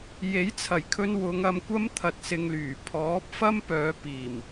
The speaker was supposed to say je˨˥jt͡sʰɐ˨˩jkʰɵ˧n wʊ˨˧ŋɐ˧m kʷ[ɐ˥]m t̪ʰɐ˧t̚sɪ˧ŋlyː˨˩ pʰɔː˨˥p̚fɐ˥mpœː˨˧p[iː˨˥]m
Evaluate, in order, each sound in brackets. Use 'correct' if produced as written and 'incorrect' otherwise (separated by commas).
correct, incorrect